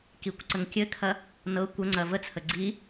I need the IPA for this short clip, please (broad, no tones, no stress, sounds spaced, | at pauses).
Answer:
k i kʷ ǀ ə ŋ kʲ ɘ kʰ ɐ | n ɤ kʷ ə ŋ͡ǀ ɐ v ə t͡sʰ ə ɡ͡ǀ i